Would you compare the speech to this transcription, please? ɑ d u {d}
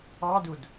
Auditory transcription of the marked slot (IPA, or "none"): d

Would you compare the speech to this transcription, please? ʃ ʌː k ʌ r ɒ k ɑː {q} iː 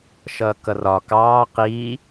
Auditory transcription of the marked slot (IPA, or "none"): q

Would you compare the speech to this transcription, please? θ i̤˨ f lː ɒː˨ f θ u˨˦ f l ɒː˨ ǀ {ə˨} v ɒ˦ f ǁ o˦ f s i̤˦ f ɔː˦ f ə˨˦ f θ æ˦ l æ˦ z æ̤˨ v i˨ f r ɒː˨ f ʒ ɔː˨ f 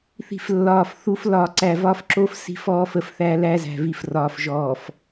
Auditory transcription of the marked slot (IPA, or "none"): æ˨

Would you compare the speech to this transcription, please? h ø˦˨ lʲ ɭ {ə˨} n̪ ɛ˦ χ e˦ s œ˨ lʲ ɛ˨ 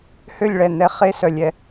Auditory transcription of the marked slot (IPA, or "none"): ɛ˨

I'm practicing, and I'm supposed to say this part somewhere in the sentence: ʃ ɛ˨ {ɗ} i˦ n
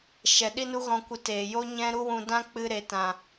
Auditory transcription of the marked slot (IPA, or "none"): ɗ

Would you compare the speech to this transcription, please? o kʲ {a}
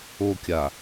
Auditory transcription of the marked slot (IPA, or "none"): a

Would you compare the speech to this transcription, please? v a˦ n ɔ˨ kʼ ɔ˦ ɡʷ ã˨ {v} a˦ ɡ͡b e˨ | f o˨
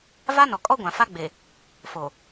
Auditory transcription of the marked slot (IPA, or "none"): f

